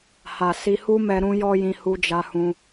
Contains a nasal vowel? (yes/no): yes